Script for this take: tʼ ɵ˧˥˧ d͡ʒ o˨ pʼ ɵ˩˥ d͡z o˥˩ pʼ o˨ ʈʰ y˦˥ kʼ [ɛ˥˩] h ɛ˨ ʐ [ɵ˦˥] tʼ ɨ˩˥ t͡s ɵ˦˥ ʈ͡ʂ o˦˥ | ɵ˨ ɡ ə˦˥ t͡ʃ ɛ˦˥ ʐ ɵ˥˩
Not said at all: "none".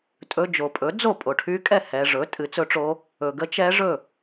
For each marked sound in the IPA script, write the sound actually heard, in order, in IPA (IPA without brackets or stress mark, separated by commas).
ɛ˥˩, ɵ˩˥